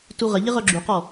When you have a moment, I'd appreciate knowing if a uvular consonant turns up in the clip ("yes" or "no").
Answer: yes